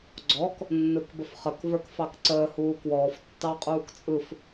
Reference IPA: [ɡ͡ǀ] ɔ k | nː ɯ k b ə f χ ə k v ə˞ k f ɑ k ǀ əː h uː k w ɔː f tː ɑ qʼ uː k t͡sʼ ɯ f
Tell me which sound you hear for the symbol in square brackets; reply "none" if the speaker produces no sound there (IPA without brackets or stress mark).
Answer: ɡ͡ǀ